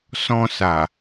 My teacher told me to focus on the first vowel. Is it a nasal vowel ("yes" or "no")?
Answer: yes